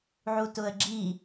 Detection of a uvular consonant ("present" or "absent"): absent